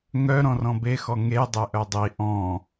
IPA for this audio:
ŋœ ɾɔ̃rɔ̃bexɔ ŋedˤe ʔœdˤi ʔɔ̃

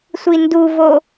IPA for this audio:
sʷinduvo

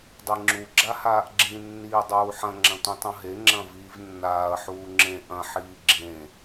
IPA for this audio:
dˤiŋ͡ǁu ɡ͡ǁahaːʔɡ͡ǁĩ nːiːdˤuːħɐ̃ ŋ͡ǁɐ̃tʷĩtˤũɦe ŋ͡ǁɐ̃viːvnːaːɐ̯ ħuːŋ͡ǁẽ ʔɐ̃ ħiːɡ͡ǁẽ

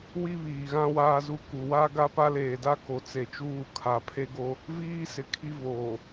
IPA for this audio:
wi˦βiː˨ɣã˦ waː˦zu˦ku˨ wa˦ ɡa˦pa˦leː˨da˦ ko˨t͡se˨t͡ʃuː˦˨ kʰa˨ pʰe˦ɡo˦ | viː˦sɪ˨ kʰi˦voː˨

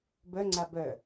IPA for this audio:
bœŋ͡ǀa bœ

